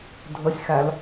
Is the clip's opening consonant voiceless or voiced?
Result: voiced